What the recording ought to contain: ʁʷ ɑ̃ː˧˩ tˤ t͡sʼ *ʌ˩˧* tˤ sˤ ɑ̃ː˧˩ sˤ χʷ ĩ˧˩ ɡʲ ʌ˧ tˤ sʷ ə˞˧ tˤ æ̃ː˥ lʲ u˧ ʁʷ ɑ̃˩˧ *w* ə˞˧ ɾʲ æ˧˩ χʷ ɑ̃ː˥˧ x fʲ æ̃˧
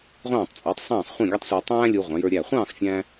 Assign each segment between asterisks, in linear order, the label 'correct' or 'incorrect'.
incorrect, incorrect

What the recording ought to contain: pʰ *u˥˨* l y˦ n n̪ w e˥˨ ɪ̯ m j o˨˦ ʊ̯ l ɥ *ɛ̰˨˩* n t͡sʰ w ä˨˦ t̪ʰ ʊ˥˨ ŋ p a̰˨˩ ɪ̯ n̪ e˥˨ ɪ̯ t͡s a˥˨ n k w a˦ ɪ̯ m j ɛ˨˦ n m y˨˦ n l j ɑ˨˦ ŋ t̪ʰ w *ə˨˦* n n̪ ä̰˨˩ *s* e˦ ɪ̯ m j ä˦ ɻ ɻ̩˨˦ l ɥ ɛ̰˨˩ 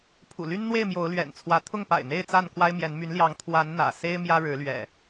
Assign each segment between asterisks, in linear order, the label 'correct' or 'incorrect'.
incorrect, correct, incorrect, correct

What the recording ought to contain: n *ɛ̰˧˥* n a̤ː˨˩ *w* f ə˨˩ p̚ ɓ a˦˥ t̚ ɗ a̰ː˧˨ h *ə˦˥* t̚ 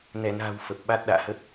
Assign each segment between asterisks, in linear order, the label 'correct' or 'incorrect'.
incorrect, correct, correct

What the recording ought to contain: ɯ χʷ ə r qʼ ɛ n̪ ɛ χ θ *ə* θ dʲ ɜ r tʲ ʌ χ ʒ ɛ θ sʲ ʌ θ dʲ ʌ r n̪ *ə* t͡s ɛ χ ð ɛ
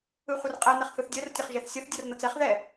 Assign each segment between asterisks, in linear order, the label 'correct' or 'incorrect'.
incorrect, incorrect

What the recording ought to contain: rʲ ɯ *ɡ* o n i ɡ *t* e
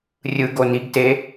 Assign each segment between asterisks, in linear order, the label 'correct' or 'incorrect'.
correct, correct

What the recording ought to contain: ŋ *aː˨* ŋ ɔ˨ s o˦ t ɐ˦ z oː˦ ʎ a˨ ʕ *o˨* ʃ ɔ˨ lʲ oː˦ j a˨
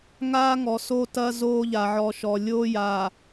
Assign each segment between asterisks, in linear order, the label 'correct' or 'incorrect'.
incorrect, incorrect

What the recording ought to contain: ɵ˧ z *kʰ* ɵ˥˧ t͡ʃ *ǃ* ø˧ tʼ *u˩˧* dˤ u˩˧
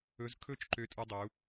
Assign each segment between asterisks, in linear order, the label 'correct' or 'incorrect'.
correct, correct, incorrect

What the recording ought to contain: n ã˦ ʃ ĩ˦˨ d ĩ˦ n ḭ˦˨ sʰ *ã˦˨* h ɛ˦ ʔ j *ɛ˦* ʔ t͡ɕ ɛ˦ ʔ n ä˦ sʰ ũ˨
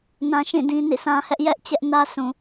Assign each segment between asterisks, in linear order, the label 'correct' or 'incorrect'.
incorrect, correct

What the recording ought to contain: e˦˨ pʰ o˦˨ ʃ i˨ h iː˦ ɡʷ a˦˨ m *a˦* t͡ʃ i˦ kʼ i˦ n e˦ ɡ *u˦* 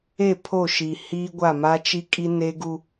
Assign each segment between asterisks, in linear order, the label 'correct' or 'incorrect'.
correct, correct

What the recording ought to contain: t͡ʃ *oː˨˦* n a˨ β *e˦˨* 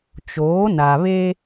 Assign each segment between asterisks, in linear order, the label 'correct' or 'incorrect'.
correct, incorrect

